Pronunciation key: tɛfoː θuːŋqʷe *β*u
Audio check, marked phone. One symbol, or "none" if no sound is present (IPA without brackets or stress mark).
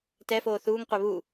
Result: β